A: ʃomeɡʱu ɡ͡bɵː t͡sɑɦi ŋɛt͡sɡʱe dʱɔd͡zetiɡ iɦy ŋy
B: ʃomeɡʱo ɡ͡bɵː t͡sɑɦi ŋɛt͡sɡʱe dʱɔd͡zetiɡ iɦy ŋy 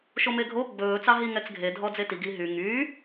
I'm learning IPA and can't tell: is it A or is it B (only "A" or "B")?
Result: B